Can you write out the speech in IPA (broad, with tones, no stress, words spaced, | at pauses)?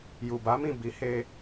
ju˨ba˨˦mĩ˦˨ bi˨˦ he˧